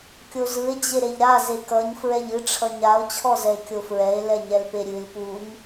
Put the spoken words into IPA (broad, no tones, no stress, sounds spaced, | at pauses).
kʲ o z ɯ e̯ d͡ʑ e ɾ e ʎ ɾ a z e k ʌ ɲ f ɹ ɛ ʎ ɨ ʈ͡ʂʰ ʌ ɲ a o̯ t͡ɕʰ ɔ z ɛ e̯ kʲ o f ɹ ɛ e̯ l ɛ ɲ ɛ l p e ɾʲ ɨ l p u ɲ